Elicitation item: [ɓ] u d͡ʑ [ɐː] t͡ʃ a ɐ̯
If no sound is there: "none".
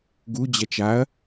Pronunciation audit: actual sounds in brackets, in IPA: ɡ, ɐ

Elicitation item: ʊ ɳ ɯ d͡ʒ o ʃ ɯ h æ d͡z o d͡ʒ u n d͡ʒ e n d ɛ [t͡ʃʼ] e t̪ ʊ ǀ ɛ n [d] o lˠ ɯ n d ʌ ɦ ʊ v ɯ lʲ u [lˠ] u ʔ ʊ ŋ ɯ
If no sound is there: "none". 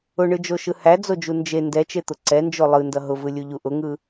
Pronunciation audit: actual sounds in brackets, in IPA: t͡ʃ, d͡ʒ, ʎ

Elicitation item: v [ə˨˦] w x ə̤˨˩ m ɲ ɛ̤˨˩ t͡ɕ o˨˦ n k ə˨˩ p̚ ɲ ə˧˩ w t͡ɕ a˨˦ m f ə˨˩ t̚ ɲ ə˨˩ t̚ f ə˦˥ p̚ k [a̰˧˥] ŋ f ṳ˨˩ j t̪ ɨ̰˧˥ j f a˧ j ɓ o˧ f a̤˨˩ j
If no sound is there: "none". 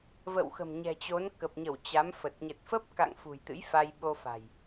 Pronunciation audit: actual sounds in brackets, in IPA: ə̰˧˨, a̰˧˨

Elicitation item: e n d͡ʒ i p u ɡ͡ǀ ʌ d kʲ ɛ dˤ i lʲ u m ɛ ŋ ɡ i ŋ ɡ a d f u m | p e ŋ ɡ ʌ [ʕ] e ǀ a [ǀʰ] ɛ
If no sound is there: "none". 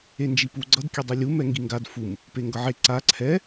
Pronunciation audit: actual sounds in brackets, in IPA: ʕ, ǀʰ

